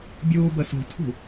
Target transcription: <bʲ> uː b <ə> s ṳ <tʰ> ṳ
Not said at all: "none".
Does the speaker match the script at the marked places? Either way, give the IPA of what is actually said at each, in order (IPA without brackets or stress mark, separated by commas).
bʲ, ə, tʰ